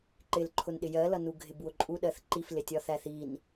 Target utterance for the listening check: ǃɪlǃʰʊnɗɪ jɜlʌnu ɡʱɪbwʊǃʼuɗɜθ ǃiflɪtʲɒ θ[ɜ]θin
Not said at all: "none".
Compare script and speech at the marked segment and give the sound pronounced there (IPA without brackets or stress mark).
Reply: æ